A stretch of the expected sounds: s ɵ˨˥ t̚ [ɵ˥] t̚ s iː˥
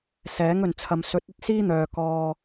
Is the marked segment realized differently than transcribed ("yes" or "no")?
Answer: no